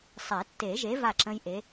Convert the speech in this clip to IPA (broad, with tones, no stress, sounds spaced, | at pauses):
sˤ e˨˩˦ tː e˨˩˦ ʒ e˨˥ v a˥˨ ǁ ə̃˦˥ j ʔ e˨˥